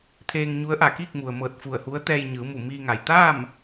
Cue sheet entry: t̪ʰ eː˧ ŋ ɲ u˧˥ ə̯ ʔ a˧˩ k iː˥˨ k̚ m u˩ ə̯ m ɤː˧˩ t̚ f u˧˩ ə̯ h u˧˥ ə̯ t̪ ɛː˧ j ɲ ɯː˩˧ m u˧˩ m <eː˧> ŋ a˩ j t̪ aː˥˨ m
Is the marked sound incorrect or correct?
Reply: incorrect